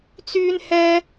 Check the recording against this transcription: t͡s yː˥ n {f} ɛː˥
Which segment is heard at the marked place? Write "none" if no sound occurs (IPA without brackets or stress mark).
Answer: h